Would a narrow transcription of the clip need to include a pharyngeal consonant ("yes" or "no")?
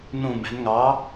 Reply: no